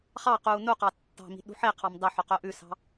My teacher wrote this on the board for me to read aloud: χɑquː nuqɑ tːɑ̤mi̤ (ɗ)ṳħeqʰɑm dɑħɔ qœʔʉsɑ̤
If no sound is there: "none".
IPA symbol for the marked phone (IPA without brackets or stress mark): ɗ